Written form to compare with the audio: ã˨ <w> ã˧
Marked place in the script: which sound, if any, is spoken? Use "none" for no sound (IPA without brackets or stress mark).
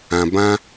b